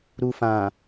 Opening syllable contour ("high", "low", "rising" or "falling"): low